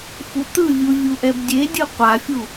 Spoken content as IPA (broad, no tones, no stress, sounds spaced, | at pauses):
f u t̪ ɯ vʲ u vʲ u ʔ ɛ b dʲ e dʲ ɯ qʷ a fʲ u